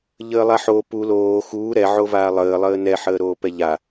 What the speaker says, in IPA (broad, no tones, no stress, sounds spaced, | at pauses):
ʎ əː lˠ a ħ oː p u l oː x uː ɾ ɛ ʕ o v aː lˠ əː lˠ əː n ɛ ħ əː ɾ oː p ɛ ʎ a